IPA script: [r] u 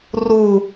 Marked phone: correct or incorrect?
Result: correct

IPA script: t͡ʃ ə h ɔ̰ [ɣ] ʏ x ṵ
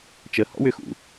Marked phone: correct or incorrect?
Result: incorrect: w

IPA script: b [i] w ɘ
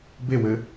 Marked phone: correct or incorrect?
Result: incorrect: e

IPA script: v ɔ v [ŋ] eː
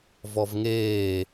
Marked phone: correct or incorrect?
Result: correct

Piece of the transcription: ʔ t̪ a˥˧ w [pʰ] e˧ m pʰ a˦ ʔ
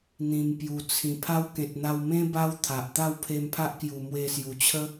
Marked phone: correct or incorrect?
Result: correct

